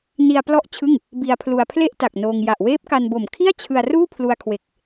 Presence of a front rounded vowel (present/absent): absent